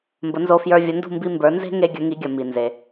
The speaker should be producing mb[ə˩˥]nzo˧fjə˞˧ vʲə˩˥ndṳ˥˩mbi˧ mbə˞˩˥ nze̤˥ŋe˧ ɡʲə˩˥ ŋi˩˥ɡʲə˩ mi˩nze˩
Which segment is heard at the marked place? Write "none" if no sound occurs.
ə˩˥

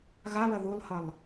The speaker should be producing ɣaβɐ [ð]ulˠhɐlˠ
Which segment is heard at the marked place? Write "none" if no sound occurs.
ð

